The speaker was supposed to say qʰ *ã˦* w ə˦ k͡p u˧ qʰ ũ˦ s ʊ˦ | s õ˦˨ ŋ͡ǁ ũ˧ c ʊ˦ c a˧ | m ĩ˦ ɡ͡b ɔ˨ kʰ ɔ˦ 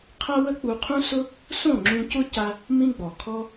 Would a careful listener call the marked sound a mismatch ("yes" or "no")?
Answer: yes